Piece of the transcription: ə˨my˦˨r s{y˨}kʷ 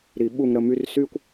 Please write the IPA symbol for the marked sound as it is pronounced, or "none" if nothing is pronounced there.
y˥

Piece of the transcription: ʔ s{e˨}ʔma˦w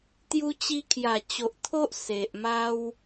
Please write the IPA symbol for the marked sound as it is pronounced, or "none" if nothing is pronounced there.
e˨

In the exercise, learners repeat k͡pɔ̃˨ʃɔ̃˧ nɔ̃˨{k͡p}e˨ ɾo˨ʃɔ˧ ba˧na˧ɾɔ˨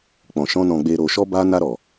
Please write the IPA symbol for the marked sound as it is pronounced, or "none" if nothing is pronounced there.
ɡ͡b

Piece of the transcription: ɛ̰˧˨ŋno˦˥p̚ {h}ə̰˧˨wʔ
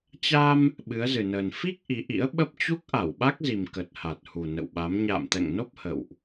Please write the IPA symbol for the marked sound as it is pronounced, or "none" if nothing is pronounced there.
h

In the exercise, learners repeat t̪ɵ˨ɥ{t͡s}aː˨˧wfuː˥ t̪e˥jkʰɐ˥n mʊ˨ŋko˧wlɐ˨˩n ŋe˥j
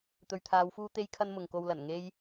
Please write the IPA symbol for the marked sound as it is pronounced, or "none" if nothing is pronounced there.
t̪ʰ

